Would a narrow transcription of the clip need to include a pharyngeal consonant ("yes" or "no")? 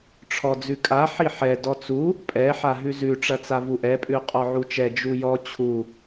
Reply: yes